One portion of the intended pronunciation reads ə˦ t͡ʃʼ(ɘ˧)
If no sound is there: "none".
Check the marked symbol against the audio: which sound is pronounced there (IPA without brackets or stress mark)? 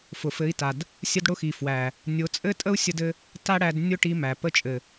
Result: ɘ˨